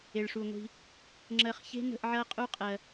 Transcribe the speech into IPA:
e˨ ɭ ʂ u˨ ŋʷ i̤˧ | ŋ͡ǁ ɜ˧ χ ç e̤˦ n ə̤˧ ʔ ʕ ɐ˦ qʼ u˦ qʼ ɜ˧

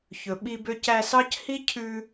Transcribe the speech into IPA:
ç ɵ˨ ɓ i˦ b ø˦ c æ˦ s ɑ˥ c h i˥ cʰ ʉ˦

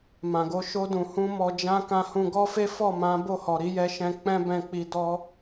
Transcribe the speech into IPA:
m ã˨ ɡ o˧ ʃ o˧ d ũ˨ h ũ˧ m ɔ˧ d͡ʒ ã˦ k ã˧ h ũ˧ ɡ ɔ˦ f e˦ f ɔ˦˨ m ã˨˦ b o˦˨ h ɔ˨ ɾ i˨˦ j ɛ˦ ʃ ɛ̃˦ k͡p ɛ̃˦ b ɛ̃˧ k͡p i˧ d ɔ˦

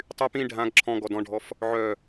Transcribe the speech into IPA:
tˤ y p ĩ ɖʱ ã ɡ ǁʰ ɔ̃ ɡ ɔ d ɔ̃ ɖʱ ɔ f | ʕ œ

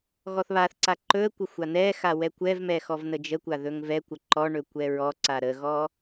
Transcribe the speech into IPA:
ɣ ɔ θ β a θ ǀ a ǃ ɵ ə̯ kʷ ə xʷ a n̪ ɛ x a w ɛ kʷ ɛ v m ɛ x ɔ v n ə d͡ʒ ə kʷ a ð ɵ ŋ v ɛ kʷ ə ǃ ɔ ɳ ɵ kʷ ɛ ɹ ɔ ǀ a ɾ ə ɣ ɔ

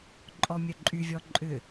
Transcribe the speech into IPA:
ǃʼ ɔ mʲ œ ǃʼ y vʲ ɔ ǃʼ ʏ

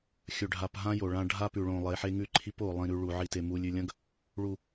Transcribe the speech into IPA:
xʲ ɵ˨ ɖʱ a˨ p ɦ ã˦ j o˨ ɭ ã˦ ɖʱ a˦ p ʉ˨ ɭ õ˨ lˠ e˨˦ ħ e˦ ŋ ʉ˦ ǃʰ i˦ p o˨ lˠ ĩ˨ ɾ ʉ˨ ɭ u˨ ʕ i˨ t e˨ m u˨ lʲ ʉ˨ lʲ ɐ̃˦ ɡ | ɭ u˨

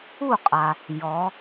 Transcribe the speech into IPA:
u˥˩ qʼ a˩ | j ɔ˩˧

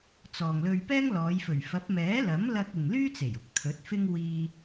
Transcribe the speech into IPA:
t͡s ɔː˨ ŋ l ɵ˧ ɥ p ɛː˥ ŋ l ɔː˨˧ j f ɵ˨˩ ɥ f ɐ˨˥ p̚ m ɛː˨˥ l ɐ˨˥ m l ɐ˧ k̚ ɪ˨ ŋ l yː˥ t͡s e˨˩ j ʊ˨ k̚ t̪ʰ ɵ˨˥ t̚ f ɪ˥ ŋ w iː˧

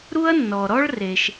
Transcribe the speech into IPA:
ɾ u˥ ɐ̯ nː ɔ˨ ɾ ɔ˥ ɭ r e˨ ʃ

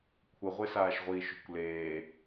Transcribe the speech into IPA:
kʷʰ ə ʁʷ e s aː ʃ ʁʷ iː ʃ o̤ kʷ l eː

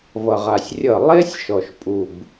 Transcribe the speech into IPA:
v ʌ˨ ʁ a˨ sʲ rʲ ʌ˦˨ lˠ e˦ sʲ ʃ ɔ˨ ʃ pʼ u˨ b

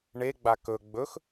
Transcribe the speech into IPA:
ɳ e ɡ͡b a k ɵ ɡ͡b ɵ x

